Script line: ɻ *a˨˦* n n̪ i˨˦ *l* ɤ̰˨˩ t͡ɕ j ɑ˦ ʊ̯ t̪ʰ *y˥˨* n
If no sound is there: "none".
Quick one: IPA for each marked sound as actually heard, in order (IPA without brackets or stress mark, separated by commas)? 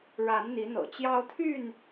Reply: a˨˦, n̪, y˥˨